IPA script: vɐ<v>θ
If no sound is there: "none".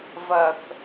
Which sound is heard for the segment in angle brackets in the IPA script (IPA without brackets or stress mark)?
none